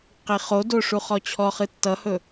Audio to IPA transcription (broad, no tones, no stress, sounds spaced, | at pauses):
q i χ o d o ʂ u χ ɔ t͡ɕʰ ɔ χ ɨ tː ʌ h ɵ